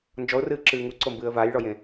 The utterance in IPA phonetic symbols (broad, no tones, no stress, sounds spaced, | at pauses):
n d͡ʒ ɔ ʊ̯ r ɨː ǁ ɨː ŋ u ǀ o m b ɨː ə̯ v a j ɭ ɔ j ẽ